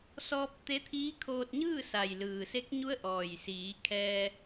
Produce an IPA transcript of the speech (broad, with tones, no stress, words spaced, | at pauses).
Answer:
sɔː˧p̚t̪e˧˥t̪ʰiː˧˥kʰoː˧t̚ ɲɯː˥˨sa˩j lɯː˩se˧˥k̚ɲu˧˥ə̯ʔɔː˩j siː˩˧ kʰɛː˧